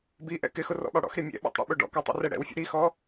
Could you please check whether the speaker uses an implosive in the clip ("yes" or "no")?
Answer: yes